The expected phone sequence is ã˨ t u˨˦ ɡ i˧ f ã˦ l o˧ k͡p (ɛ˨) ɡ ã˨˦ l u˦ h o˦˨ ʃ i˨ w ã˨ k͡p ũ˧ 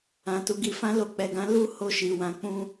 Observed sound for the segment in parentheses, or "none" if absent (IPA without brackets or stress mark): ɛ˨